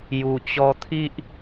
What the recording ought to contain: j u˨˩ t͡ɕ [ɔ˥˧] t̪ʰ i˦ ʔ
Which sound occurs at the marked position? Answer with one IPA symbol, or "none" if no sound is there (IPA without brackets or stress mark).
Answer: ɔ˧